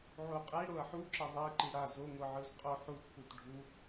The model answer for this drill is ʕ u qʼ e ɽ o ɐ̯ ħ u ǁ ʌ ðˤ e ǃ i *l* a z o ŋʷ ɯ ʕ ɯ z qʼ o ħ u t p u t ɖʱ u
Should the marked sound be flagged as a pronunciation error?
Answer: yes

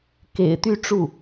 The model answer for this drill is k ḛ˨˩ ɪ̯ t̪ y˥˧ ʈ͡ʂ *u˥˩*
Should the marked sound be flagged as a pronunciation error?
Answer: no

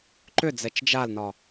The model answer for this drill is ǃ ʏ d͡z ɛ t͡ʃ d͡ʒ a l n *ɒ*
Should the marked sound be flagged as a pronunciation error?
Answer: no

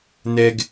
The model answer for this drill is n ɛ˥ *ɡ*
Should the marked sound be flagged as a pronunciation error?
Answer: no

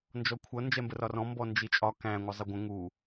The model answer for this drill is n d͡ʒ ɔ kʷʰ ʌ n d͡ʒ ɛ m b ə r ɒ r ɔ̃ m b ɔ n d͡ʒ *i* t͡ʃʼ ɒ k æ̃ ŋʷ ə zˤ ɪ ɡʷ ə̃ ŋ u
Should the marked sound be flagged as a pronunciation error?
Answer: no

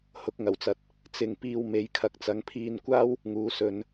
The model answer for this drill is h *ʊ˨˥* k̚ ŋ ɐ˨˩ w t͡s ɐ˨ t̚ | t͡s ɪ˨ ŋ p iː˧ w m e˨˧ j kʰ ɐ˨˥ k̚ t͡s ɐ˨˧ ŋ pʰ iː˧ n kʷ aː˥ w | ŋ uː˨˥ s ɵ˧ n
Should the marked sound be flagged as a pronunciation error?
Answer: no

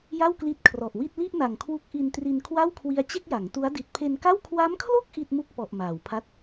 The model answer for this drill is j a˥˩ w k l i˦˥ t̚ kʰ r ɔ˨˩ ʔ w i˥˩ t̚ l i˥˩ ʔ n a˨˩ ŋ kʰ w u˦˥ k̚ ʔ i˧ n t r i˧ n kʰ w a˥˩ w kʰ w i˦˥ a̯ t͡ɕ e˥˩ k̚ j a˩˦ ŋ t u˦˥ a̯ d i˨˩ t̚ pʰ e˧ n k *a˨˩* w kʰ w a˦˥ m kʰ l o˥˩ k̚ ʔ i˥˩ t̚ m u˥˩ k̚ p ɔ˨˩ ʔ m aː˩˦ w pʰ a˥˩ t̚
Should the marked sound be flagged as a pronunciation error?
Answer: yes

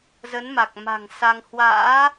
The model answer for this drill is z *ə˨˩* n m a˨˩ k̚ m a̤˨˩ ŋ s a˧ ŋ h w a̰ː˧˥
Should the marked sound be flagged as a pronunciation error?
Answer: yes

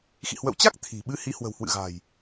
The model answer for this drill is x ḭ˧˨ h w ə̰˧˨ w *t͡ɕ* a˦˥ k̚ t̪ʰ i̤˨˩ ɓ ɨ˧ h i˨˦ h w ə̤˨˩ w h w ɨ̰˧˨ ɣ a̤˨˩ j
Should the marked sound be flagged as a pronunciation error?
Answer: no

